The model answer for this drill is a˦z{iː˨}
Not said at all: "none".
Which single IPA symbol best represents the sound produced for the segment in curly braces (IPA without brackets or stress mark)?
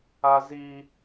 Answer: iː˦